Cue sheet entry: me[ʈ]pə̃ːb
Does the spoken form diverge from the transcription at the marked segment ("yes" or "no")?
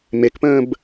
yes